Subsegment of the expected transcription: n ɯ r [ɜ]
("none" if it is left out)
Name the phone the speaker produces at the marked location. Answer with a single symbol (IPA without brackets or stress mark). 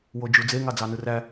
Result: æ